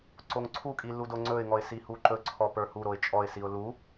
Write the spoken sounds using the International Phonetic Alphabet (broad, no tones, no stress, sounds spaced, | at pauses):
ǀ o ŋ ǀʰ u kʼ i l u d o ŋ͡ǀ ɵ ɪ̯ ŋ ɔ ɪ̯ s i h u ǃ ɵ ǀʰ ɔ p ə˞ h u ɾ o ɪ̯ t͡ʃʼ ɔ ɪ̯ s i ʊ̯ l u